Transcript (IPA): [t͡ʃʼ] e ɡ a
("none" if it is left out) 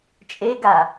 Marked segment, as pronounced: t͡ʃʼ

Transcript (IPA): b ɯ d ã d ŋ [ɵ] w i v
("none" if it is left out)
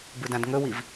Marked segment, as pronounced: ɵ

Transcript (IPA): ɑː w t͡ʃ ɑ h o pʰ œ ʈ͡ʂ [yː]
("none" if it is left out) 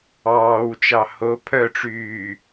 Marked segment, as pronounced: yː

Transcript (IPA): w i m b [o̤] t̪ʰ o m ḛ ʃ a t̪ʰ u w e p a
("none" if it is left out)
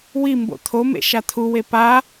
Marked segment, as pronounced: o̰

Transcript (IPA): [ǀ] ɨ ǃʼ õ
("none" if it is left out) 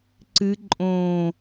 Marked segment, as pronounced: ǀ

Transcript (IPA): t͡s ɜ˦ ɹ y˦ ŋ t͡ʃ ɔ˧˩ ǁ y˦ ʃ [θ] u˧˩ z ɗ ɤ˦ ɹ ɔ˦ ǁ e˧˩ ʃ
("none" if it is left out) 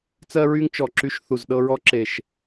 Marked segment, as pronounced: θ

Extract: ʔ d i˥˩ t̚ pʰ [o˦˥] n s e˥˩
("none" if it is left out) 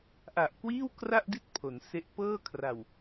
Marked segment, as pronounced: o˩˦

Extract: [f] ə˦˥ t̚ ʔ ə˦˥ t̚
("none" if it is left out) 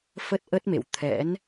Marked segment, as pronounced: f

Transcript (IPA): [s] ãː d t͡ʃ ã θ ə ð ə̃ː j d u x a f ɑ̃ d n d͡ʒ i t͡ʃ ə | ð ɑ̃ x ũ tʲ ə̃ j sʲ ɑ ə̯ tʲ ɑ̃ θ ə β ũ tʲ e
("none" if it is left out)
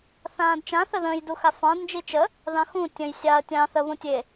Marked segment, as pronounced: θ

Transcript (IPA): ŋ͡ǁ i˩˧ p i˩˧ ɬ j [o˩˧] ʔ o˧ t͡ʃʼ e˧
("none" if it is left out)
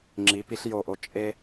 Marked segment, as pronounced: o˨˩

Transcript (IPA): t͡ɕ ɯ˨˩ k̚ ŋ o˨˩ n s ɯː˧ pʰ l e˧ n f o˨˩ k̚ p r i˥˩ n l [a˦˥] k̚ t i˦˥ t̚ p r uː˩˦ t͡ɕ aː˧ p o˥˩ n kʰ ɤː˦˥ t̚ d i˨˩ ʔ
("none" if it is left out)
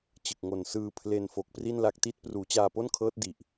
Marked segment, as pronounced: a˦˥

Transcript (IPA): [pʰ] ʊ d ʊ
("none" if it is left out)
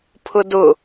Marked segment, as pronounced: pʰ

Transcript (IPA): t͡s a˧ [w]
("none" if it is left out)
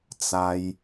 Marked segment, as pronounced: j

